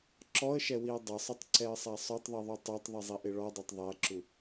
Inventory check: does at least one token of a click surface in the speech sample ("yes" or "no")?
yes